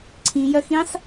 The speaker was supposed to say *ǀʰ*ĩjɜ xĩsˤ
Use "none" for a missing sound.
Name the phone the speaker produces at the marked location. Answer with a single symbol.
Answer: ǀʰ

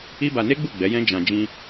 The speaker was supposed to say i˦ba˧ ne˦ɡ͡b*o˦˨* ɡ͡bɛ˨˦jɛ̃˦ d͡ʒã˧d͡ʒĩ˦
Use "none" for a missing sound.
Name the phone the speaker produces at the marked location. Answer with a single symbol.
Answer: u˦˨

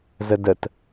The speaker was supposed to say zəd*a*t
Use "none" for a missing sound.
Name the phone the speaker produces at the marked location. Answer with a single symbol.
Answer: ə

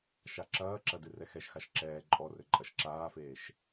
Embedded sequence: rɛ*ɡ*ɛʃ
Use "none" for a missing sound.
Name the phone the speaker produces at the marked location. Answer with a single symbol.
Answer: x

